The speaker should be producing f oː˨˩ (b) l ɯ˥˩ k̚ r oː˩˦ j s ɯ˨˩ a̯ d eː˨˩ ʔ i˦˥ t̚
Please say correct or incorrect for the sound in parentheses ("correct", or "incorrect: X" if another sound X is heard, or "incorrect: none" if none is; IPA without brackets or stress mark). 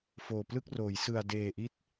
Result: incorrect: p